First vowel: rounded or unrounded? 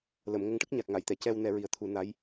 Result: unrounded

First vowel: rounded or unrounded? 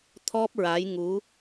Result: rounded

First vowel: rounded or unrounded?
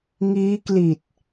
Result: unrounded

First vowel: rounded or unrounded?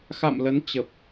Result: unrounded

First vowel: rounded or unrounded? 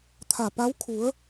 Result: unrounded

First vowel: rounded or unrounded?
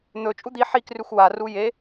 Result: rounded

